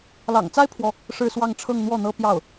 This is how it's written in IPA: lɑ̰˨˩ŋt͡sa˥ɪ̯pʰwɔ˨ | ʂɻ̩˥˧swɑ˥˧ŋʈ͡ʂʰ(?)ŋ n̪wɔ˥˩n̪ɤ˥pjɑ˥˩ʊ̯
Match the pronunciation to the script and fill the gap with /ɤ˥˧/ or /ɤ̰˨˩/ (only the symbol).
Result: ɤ˥˧